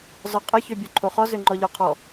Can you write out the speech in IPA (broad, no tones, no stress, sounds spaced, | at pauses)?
z ɔ qʼ ə ç ø bʲ ø ǃʰ o χ ɔ z ø ŋ͡ǃ ɔ ʎ ɔ qʰ ɔ